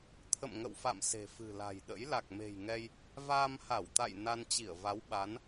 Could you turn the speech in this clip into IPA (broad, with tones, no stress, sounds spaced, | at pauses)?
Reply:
t̪ʰ ə̰˧˨ m ŋ ə̰˧˨ w f a̰˧˨ m s e̤˨˩ f ɨ̤˨˩ l a̤˨˩ j ɗ ə̰˧˥ j l a˨˩ k̚ m e̤˨˩ j ŋ ɛ˧ j | v a˧ m h a˧˩ w t̪ a̰˧˨ j n a˧ n t͡ɕ i˧˩ ə̯ v a˨˦ w ɓ a˨˦ n